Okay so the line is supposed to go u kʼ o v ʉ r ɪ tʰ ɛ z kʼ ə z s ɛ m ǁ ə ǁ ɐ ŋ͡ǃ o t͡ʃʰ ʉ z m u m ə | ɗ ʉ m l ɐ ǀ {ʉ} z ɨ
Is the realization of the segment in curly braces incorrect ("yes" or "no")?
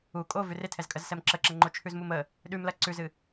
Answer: no